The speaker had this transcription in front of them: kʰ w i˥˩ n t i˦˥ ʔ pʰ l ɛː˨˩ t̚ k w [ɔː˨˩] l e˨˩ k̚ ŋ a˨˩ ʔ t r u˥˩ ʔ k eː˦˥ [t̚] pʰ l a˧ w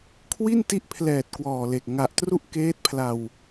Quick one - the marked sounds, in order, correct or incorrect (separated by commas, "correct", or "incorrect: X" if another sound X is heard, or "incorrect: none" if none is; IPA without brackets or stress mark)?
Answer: correct, correct